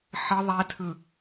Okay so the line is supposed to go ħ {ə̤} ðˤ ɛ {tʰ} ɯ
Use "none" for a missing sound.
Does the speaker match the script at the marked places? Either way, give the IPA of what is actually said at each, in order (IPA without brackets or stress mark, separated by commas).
ə, tʰ